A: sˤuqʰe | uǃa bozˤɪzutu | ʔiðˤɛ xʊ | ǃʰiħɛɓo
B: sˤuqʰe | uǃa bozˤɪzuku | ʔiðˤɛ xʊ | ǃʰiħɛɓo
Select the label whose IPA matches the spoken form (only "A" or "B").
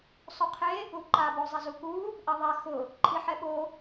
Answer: B